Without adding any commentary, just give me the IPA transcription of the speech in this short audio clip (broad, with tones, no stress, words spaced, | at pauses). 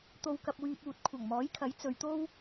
t̪o˧wkɐ˧p̚wyː˧p̚uː˨t̚ kʷʰɐ˨˩ŋmɔː˨˥jkʰɐ˨˥j t͡sɵ˨˧ɥt̪o˥w